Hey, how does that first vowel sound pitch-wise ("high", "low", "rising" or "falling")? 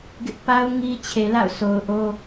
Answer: high